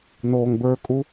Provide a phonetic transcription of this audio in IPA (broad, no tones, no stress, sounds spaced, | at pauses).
n oː ŋ b ə˞ kʼ u